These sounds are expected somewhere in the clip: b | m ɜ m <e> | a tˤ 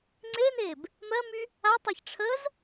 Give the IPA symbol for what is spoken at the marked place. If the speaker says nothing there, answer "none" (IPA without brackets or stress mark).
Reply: y